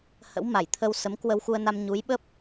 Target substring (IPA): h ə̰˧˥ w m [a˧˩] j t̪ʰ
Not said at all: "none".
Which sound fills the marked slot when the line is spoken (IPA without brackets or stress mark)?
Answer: a˧˩